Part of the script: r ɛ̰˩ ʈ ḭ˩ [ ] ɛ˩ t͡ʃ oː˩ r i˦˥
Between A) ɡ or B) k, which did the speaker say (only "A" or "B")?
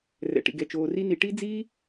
A